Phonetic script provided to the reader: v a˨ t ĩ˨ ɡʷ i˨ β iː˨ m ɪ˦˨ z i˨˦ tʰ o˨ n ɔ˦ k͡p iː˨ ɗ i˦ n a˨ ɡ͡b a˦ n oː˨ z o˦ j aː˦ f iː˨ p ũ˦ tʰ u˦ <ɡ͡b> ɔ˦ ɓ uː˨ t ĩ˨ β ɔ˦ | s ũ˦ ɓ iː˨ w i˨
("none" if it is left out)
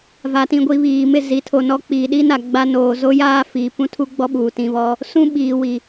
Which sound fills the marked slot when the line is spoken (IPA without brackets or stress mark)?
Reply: ɡ͡b